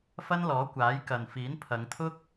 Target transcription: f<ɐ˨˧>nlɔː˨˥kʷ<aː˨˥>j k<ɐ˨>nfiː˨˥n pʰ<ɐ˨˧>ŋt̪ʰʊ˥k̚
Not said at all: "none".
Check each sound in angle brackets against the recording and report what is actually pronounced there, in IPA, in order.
ɐ˥, aː˨˥, ɐ˨, ɐ˨˧

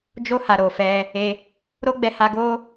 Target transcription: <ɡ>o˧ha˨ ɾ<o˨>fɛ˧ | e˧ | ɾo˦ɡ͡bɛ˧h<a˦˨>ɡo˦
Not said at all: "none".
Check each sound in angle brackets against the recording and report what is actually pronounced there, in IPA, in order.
d͡ʒ, o˨, a˧

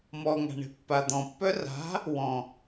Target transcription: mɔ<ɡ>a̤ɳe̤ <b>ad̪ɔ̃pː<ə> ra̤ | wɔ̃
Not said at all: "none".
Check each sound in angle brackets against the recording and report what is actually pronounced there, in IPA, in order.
ŋ, pː, œ

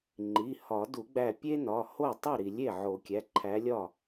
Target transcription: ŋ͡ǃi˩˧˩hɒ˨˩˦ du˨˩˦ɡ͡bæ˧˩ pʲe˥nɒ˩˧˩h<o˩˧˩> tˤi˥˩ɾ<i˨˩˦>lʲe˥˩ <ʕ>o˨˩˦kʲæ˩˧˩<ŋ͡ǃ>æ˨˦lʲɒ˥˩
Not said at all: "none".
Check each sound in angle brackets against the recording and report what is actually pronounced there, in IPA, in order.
o˥˩, i˨˩˦, ʕ, ǃʰ

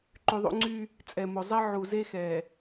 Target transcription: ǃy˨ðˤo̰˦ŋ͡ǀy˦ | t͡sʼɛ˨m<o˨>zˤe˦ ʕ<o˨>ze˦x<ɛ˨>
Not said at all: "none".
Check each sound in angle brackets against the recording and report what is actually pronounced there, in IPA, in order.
o˨, u˨, ɛ˨

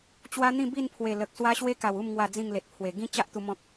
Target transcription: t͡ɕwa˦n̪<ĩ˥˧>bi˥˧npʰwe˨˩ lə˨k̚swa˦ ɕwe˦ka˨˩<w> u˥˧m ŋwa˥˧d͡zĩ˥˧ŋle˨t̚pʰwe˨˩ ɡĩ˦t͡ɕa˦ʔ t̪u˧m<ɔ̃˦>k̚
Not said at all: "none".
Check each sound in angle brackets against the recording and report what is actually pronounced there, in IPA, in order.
ĩ˥˧, w, ɔ̃˦

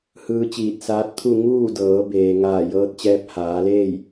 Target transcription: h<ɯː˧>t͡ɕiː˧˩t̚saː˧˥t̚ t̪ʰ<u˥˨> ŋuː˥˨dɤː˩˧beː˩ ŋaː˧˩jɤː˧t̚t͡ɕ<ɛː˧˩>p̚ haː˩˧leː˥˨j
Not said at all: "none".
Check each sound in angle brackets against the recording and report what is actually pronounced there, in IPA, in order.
ɯː˧, u˥˨, ɛː˧

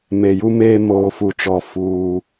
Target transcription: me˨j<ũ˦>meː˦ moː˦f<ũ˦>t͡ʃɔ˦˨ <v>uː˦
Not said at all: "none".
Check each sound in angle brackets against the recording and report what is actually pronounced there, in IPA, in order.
u˦, u˦, f

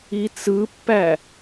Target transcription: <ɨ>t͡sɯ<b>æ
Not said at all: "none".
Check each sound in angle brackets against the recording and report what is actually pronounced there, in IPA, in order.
i, pː

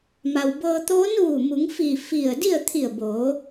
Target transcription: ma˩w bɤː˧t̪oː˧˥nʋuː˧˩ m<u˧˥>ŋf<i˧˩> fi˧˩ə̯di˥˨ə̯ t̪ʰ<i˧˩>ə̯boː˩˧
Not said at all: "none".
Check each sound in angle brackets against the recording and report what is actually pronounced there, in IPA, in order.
u˩˧, i˧˩, i˧˩

